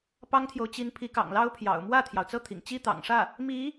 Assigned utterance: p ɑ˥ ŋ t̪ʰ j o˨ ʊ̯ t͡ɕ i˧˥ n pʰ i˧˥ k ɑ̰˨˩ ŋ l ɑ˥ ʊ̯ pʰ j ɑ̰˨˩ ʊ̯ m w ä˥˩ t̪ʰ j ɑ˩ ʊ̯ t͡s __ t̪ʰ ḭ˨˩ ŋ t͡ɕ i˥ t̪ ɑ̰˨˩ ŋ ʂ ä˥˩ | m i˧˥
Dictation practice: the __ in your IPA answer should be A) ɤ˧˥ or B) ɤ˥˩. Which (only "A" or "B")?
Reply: B